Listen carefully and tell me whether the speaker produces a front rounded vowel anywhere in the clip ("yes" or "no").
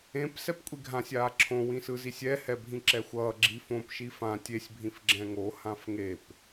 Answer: no